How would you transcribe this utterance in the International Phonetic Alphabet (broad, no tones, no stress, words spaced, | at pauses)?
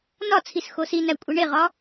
nɒt͡sʰis xosinæ kʷʼeɳeʁɒ